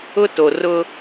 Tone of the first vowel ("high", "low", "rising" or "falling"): high